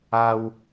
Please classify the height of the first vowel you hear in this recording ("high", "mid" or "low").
low